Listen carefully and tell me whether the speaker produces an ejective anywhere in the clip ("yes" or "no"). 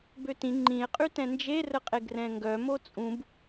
yes